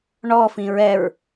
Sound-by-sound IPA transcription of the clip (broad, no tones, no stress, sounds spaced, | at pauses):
ɳ ɔ f ĩ ɹ ɛ ɹ